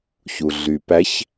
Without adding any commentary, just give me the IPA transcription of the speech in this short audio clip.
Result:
çuɮypæç

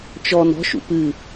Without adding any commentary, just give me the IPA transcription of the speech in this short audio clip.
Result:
t͡ʃɔ nɔ̤ʃṵ pɨ

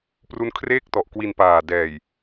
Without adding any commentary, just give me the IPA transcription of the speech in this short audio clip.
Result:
pru˦˥nkʰreː˥˩k̚tɔ˨˩ʔ kwi˧npaː˨˩ dɛː˨˩j

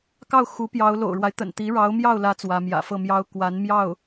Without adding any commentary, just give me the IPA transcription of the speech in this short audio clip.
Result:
kɑ˥˩ʊ̯xu˧˥pjɑ˧˥ʊ̯ lo̰˨˩ʊ̯ɻwa˦ɪ̯ t̪ə̰˨˩nt̪i˧˥ɻɑ˧˥ʊ̯mjɑ˥˩ʊ̯ lä˥t͡swä˧˥ mjä̰˨˩fɤ˥˩mjɑ˥ʊ̯ kwa˧˥nmjɑ˥˩ʊ̯

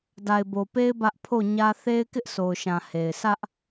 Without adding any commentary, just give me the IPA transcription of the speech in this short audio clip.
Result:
da˨ɪ̯bo˨pe˦ɪ̯ bä˦ʔpʰo˦˨ ɲä˦ θe˦ɪ̯kɪ˦ʔ sʰo˨ʊ̯ʃã˨ he˨ɪ̯ sʰä˦ʔ

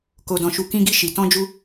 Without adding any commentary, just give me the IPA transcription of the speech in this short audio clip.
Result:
ko˧dɔ̃˧ʃu˧ kĩ˧ɡi˧ʃi˨ tɔ̃˧d͡ʒu˧

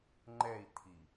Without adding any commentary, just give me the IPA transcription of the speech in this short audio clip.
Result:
ŋ͡ǃɛi̯tʰi

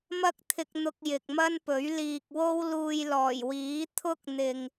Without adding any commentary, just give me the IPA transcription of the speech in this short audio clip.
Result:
mɐ˥k̚t̪ʰɪ˧k̚n̪ʊ˧k̚ jɪ˨k̚mɐ˥n pɵ˨˥ɥliː˧k̚ wo˥wluː˧jlɔː˨˩jwiː˨˥ t̪ʰʊ˥k̚ n̪ɪ˨ŋ

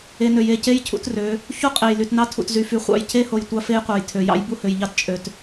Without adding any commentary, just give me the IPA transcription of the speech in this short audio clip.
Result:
e˨nø˨j e˦˨ce˦j cʰṵ˦trø˨˦ | çu˦qʼe˨j ly˨tnɑ˦ tʰṵ˨tzy˨fy˨χʷɑ̰˦˨j ce˦ho˨j tʷɑ˦fe˦jqʷɑ˨j tʰø˨jɑ̰˦j bu˦hø˨jʎɑ˦t t͡ʃʼø˨t

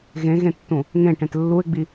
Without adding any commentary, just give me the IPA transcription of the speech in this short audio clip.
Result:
ɣẽɣẽtːũ | ŋẽ ʈẽtlːuɪ̯ɡ͡bi

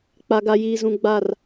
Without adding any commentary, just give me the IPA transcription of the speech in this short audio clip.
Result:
k͡pa˨ɡa˨jiː˨zũ˨ ɡ͡ba˦˨r

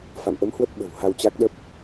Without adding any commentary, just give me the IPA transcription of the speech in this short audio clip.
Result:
fa̰˧˨mʔə˧mhwə˦˥p̚ ɓə̤˨˩w ha˧wt͡ɕa˦˥k̚ɗə˦˥p̚

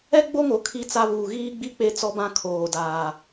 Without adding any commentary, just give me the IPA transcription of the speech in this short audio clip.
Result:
ɛ˦ ɡ͡bo˦ŋo˨ kʰi˦˨t͡sa˦ βuː˨ɣiː˦ɡ͡bi˦ k͡pe˦t͡sɔ˦bã˦ kʰoː˨daː˨

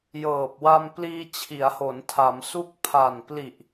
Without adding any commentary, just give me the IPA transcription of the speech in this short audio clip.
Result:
jɤː˨˩p̚wa˧m pliː˧ t͡ɕʰi˩˦a̯ho˩˦ntʰa˩˦m su˦˥k̚ pʰa˨˩npli˨˩ʔ

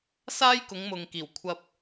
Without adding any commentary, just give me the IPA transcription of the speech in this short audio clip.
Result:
saː˥j kʊ˨˧ŋmʊ˨ŋ kiː˨˩w kʷʰɐ˧p̚

